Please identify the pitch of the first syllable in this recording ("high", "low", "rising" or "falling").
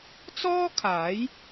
high